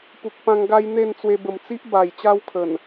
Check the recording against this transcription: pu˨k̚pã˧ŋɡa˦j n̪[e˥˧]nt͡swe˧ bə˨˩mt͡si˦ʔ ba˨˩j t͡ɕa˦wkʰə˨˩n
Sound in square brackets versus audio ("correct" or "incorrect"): correct